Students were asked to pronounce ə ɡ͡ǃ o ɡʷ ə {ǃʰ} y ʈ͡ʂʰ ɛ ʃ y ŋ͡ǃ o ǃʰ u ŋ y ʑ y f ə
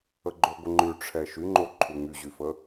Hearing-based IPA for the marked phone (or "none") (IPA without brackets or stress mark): ŋ͡ǃ